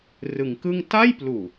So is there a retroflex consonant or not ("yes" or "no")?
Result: no